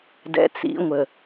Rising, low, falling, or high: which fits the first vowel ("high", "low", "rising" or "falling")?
low